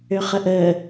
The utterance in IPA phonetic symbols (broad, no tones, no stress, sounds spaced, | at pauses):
ø χ ə ʔ əː